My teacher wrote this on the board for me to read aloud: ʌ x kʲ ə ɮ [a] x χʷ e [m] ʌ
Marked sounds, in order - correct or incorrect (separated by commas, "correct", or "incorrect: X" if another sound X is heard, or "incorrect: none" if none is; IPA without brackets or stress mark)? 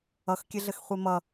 incorrect: ə, correct